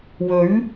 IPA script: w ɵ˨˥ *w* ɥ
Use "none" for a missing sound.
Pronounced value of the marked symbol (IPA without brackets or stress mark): none